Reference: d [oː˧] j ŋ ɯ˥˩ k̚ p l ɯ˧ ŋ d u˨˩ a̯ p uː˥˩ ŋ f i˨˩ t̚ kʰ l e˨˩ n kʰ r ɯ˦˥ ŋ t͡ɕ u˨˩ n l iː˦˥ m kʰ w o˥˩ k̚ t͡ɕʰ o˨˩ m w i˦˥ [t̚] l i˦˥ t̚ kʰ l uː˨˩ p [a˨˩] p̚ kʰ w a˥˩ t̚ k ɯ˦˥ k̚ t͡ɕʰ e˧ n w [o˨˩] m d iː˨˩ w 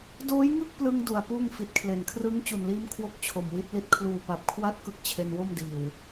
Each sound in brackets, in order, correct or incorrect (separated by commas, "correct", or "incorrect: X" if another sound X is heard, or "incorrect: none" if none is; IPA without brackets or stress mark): incorrect: oː˦˥, correct, correct, incorrect: o˥˩